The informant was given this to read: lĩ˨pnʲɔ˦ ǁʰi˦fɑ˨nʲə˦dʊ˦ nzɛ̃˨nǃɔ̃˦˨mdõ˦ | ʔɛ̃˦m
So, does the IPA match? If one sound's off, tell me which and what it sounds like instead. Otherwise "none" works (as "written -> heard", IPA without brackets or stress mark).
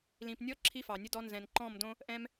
ʊ˦ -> ɔ˦